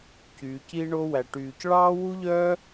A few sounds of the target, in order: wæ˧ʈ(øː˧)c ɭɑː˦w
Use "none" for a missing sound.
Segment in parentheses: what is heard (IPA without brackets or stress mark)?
yː˧